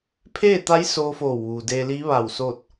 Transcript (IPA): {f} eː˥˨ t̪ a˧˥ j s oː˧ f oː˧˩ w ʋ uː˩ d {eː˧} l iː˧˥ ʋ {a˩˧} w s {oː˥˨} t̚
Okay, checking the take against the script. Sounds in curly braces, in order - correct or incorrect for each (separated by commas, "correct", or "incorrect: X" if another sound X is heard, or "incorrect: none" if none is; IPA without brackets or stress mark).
incorrect: pʰ, correct, incorrect: a˧˩, correct